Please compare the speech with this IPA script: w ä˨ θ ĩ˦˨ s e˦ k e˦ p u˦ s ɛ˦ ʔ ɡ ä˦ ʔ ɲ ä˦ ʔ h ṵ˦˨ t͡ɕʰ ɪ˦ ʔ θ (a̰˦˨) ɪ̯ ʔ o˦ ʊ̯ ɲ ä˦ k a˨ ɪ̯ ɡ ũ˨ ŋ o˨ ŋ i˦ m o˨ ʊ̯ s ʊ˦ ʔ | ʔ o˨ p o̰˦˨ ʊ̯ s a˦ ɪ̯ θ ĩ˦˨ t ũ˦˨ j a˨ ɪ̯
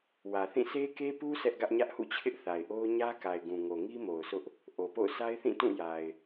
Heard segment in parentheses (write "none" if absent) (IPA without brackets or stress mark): a˨